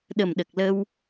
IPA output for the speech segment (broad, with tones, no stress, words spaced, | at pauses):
ɗə˨˩mɗə˨˩k̚lə˧w